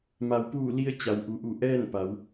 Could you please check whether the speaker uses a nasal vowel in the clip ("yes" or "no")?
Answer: no